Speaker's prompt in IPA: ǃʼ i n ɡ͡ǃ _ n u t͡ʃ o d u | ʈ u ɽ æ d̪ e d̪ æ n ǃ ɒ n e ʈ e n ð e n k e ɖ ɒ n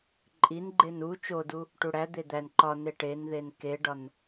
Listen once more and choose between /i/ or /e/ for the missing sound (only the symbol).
e